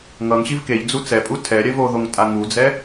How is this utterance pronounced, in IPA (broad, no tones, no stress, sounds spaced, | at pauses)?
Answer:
ŋ ʌ ŋ ɕ i v k e ʎ d͡z u t͡s ɛ pʼ u tʰ ɛ ɾʲ ɛ v o ð o ŋ tʼ a ŋ u d͡z ɛ